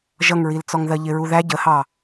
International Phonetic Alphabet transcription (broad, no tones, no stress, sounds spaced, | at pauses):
ʒ ʌ ŋ ɹ i l t͡s ɔ ŋ ð ɜ ʎ ɪ ɹ u ð æ ɟ ə h ɑ